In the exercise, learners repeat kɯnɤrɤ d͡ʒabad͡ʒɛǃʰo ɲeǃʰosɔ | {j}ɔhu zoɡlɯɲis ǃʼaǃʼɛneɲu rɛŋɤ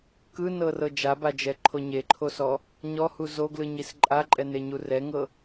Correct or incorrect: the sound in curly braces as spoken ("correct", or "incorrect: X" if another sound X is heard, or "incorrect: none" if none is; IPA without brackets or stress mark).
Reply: incorrect: ɲ